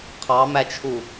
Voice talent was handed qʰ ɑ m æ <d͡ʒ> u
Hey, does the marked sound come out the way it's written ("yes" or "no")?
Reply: no